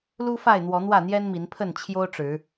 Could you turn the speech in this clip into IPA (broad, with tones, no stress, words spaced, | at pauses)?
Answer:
lu˦fa˥˨ɪ̯n̪wɔ˨˦ n̪wä˥˨n̪jɛ˦nmi˨˦npʰə˥˨n t͡ɕʰjo˦ʊ̯ʈ͡ʂɻ̩˨˦